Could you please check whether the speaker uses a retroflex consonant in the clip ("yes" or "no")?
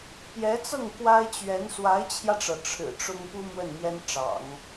yes